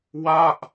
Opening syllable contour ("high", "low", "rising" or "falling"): falling